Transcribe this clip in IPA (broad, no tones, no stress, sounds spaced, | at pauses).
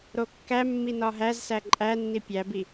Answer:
ɾ o kː æ mː i n ɒ ɦ æ z s æ ǃʼ æ nː i pʲ æ b i